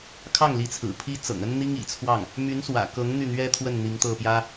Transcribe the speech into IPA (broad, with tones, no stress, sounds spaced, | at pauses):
kʰ ɑ˥˩ ŋ l i˧˥ t͡sʰ ɹ̩˨˩ pʰ i˥ t͡s ɤ̰˨˩ ŋ ə˥ n n̪ i˥ ŋ ḭ˨˩ t͡sʰ w ɑ˥˩ ŋ | m y˧˥ n s w ä̰˨˩ k ɤ˧˥ ŋ n̪ y˥˩ n̪ ɥ ɛ˥ t̪ʰ w ə˥˩ n n̪ i˧˥ ŋ t̪ ɤ˥˩ p j ä˥